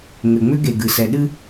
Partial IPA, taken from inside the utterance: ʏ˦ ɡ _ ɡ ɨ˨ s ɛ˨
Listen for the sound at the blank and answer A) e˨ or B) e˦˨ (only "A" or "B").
A